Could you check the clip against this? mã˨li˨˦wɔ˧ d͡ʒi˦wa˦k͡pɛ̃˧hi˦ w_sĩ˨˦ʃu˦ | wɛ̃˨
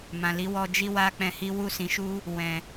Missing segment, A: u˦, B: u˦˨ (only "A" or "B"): B